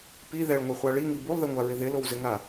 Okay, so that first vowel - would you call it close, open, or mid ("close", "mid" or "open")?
close